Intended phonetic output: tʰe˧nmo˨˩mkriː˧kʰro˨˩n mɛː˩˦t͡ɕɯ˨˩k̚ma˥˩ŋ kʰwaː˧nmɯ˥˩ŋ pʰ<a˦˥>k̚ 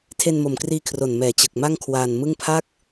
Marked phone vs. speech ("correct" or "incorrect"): incorrect